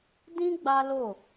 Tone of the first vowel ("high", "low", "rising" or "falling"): high